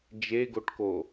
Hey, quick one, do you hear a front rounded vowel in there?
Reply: no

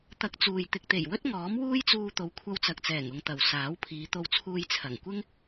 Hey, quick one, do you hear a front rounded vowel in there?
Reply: no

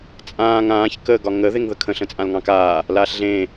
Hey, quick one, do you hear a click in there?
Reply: no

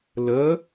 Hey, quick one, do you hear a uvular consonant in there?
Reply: no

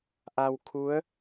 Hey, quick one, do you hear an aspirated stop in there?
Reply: yes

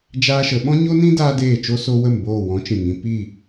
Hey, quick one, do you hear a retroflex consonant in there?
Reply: no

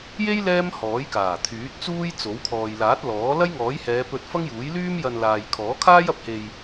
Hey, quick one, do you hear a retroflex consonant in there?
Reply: no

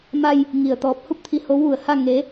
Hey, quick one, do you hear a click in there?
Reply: no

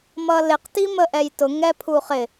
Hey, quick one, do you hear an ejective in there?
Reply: no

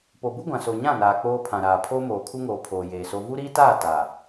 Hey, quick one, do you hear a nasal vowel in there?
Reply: yes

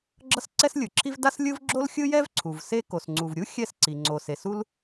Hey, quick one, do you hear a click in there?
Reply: yes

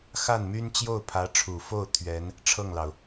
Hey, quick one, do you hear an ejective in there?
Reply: no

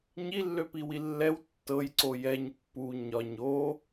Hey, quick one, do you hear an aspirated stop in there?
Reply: no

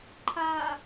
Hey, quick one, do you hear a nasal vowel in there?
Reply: no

